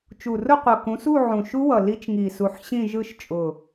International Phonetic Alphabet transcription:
t͡ʃ u˨˩ r ʊ˥˧ qʷ ʌ˨˩ k ũ˨˦ s u˥˧ ʕ ũ˨˩ ʃ u˦˥ w ʌ˨˩ l i˦˥ t͡ʃ ŋ i˨˩ s u˨˦ ħ ɕ ĩ˥˧ ʒ ɯ˥˧ ʃ t͡ʃʼ ʊ˨˩

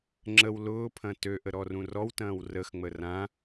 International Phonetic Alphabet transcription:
ŋ͡ǁ ə w l ʊː pʰ ɐ̃ t ø ʔ ə ɾ ɔ r ũ r ɔ w t ɐ̃ː w r ə x ŋ͡m ə r ã

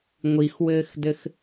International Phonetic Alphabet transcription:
ŋʷ i x w ɘː x d ɘ x

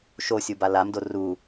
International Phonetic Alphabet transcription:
ʃ o sʲ u b a l a m d o r u

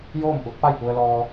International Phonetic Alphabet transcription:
j oː˥˨ m ʔ u˧˥ t̚ p a˥˨ j p u˧ ə̯ l ɔː˧

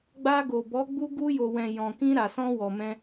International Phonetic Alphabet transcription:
ɡ͡b a˧ ɡ o˨ b ɔ˨˦ ɡ͡b u˧ ɡ u˧ j o˨ w ɛ̃˨ j ɔ̃˨ k ĩ˧ ɾ a˨ s ɔ̃˧ w ɔ˨ m ɛ̃˧

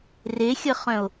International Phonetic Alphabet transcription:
r e xʲ ə χ œ̃ o̯

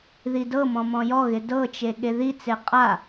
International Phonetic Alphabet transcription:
ð i d ɤ m ɔ̃ m ɔ̃ j ɔ ɣ ɪ d ɤ t͡ʃ e ɠ e ð i t͡s e qʼ a

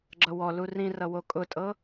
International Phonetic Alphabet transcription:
ɡ͡ǁ ʌ w ɔ l u r ĩ r ʌ w o kʼ ʊ tʼ ɤ

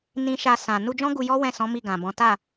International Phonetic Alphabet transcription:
n ĩ˧ ʃ a˧ s ã˨ n u˧ d͡ʒ ɔ̃˦ ɡ u˧ j ɔ˦ w ɛ̃˦˨ s ɔ̃˨˦ m i˦˨ ɡ ã˨ b ɔ̃˨˦ t a˦˨

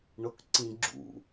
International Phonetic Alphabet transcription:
ɳ o k ǀ ĩ ɡ͡ǁ ṵ

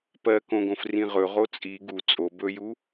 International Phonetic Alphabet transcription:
p ɜ k õ ɡ õ f r ĩ ʁ ɵ ʁ o t͡sʼ i ɡ u t͡sʼ o b ɵ j u

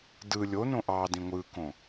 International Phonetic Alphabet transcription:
d ɯ lʲ o n õ ʔ ɑ d ĩ ŋʷ ɯ k õ

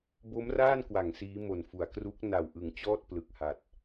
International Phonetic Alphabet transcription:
b o˦˥ m r aː˥˩ n k w a˩˦ ŋ s iː˦˥ m o˨˩ n f u˩˦ a̯ k r u˦˥ k̚ n a˨˩ w ʔ ɯ˨˩ ŋ t͡ɕ ɔː˥˩ t̚ p l ɯ˨˩ k̚ h a˨˩ t̚

